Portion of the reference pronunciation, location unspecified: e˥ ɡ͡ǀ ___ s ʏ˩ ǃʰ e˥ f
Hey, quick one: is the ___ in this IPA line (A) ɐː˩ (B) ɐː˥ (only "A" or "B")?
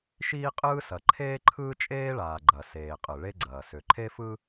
A